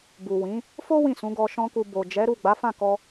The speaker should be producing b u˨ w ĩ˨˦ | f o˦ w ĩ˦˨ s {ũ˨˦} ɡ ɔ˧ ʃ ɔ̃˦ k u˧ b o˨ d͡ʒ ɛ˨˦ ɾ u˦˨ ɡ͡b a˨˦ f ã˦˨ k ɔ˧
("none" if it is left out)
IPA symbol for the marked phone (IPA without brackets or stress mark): ũ˨˦